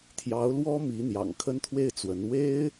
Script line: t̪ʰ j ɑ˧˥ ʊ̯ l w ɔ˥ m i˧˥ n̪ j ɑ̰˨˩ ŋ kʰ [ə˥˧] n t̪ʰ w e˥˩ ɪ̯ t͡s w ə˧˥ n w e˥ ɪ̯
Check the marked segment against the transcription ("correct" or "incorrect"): incorrect